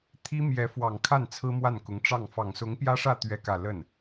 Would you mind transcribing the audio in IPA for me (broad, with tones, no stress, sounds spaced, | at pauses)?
t̪ʰ i˥ m j ɛ˧˥ f w ɑ˨˩ ŋ kʰ a˥˩ n t͡sʰ ɹ̩˥ m w a˥˩ n k ʊ˧˥ ŋ ʈ͡ʂ ɑ˥˩ ŋ f ɑ˨˩ ŋ s ʊ˧˥ ŋ p j ä˥ ʂ ä˥˧ t̪ ɥ ɛ˥˧ k ä˥˧ l ə˥˩ n